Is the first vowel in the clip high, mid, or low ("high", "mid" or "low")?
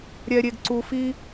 mid